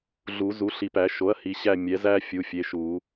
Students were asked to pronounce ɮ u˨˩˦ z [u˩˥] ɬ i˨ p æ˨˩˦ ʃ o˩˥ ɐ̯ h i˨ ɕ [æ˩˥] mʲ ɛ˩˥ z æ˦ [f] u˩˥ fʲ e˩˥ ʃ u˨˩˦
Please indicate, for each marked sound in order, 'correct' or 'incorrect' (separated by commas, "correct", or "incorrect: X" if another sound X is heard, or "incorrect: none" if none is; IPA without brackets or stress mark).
correct, incorrect: æ˦˨, incorrect: fʲ